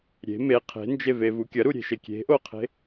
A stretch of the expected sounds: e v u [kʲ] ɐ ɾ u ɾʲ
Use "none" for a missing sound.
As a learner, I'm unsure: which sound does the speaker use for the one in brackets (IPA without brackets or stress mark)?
kʲ